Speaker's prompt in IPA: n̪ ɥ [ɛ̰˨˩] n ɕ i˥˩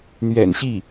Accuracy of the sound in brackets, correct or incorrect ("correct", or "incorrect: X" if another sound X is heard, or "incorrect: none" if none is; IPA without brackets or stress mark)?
correct